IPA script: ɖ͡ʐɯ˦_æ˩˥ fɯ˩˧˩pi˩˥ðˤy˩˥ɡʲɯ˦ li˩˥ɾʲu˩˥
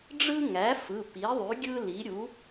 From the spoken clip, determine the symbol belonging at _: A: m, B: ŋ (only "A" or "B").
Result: B